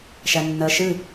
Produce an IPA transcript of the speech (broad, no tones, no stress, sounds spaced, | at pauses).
ʃ æ nː ɜ ʃ ɨ